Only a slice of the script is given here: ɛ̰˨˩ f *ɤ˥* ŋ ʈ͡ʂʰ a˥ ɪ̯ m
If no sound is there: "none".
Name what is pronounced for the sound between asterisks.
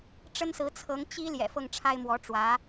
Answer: ɤ˥˩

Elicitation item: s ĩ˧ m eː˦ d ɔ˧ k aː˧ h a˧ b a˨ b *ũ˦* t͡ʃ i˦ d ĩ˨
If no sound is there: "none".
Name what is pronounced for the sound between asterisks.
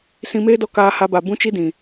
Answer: ũ˦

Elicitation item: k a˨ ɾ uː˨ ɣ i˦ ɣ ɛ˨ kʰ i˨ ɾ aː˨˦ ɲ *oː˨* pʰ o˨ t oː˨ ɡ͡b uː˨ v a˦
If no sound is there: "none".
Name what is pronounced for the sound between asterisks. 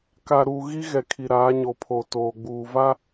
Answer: o˨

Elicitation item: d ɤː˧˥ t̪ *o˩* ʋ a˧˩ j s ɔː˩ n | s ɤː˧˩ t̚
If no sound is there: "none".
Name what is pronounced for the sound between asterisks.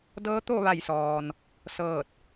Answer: o˥˨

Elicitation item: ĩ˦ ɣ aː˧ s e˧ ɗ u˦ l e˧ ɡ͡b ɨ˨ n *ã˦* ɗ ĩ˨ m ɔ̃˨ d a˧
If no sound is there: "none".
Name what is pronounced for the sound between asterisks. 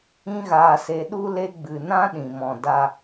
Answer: ã˦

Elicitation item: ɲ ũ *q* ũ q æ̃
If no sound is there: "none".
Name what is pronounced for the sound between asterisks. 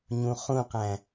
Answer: χ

